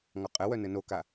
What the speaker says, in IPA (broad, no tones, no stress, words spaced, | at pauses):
ŋɔqʼɘwœ nɘnoka